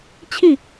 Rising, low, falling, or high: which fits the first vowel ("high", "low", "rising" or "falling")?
falling